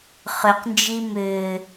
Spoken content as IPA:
χ ʏ q n d͡ʒ i m ʏː

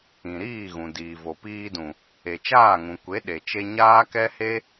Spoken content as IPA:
ĩ˨ ɾ iː˦˨ ɣ ũ˨ d iː˨ v o˨ p iː˧ d ũ˨ | e˨ t͡ʃ aː˦˨ ŋ ũ˨ kʷ e˨˦ ɗ e˨ t͡ʃ e˧ ɲ aː˦ k ɛ˦ h e˦

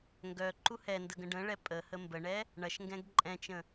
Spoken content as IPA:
ŋ ɡ œ ǃ u h ɛ n d ə ɡ ə̃ ɖ ə̃ ɭ ɛ pʼ ə h ə m b ə ɳ ɛ | ɳ ɐ ʃ ŋ ɡ ɛ̃ ɡ ǃʼ ɛ̃ t͡ʃ ə̃

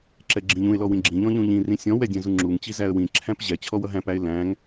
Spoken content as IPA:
ǁ ɛ ɡ͡ǁ ĩ ʎ ũ ɪ̯ l ɔ w ĩ ɡ͡ǁ ĩ ʎ ɔ̃ ʎ ũ ʎ ĩ r ĩ sʲ ɔ̃ w ɛ dʲ ɛ̃ z u ŋ͡ǁ u ŋ t͡ɕ i z æ ə̯ w ĩ ǁʰ æ̃ p ʑ ɛ t͡ɕʰ ɔ w ʌ ɦ æ̃ p æ ɪ̯ l æ̃ ŋ

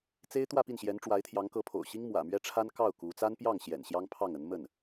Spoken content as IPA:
t͡s e˥ ɪ̯ t̪ w ä˥˧ p i˥˩ n ɕ j ɛ˧˥ n ʈ͡ʂ w a˧˥ ɪ̯ t̪ʰ j ɑ˧˥ ŋ k ɤ˧˥ pʰ o̰˨˩ ʊ̯ ɕ i˥ ŋ m w ä̰˨˩ m ɥ ɛ˥ ʈ͡ʂʰ a˥ n k ɑ˥˩ ʊ̯ k u˧˥ t͡s a˥ n p j ɑ˥˩ ŋ ɕ j ɛ̰˨˩ n ɕ j ɑ˥ ŋ pʰ ɑ˥˩ ŋ ə˧˥ n m ə˥˩ n

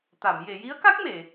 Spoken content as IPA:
t̪ a˨˩˨ m j e˨˩˨ j i˧˥ ə̯ k a˦˥ k̚ m e˨˩˨

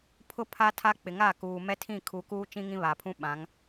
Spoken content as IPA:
pʰ ʊ˦ pʰ a˦ tʰ a˦ k͡p ɪ˨ ŋ a˦˨ k uː˨ m ɛ˦ tʰ ĩ˦˨ kʰ u˨˦ k uː˦ t͡ʃ ĩ˦ ŋ ĩ˦ β a˨ pʰ ũ˦ ɓ ã˨˦ ŋ

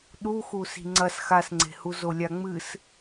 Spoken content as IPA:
ɗ u x u s i̤ ŋ͡ǀ ɐ s x a s ŋ͡ǀ e̤ h u z o lʲ a ŋ͡m ɨ s

